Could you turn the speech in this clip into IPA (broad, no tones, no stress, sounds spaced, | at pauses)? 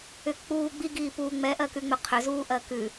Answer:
ʏ k k͡p uː ɡ͡b i ɡ iː p uː ŋ͡m ɛ ʔ ɜ k ʉ ŋ͡m ʏ qʰ ʏ z uː ʔ ɜ k ʉ